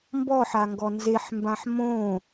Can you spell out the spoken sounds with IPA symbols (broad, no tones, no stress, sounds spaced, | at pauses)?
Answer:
m b ɔ ħ a ŋ ɡ ɔ n z e ħ m b ã ħ m õ